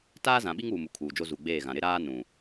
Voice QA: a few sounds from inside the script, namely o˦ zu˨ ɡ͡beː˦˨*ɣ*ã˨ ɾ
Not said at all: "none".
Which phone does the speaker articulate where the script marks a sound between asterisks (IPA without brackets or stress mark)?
ɣ